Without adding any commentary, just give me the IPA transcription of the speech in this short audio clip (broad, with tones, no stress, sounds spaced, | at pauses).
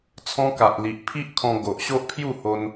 t͡sʰ ɔ̃˦ k a˨ ʔ l i˨ ʔ pʰ i˦ ʔ kʰ ɔ̃˧ ɡ o˨ ʔ ɕ o˦ ʔ pʰ j u˥˧ h o˧ n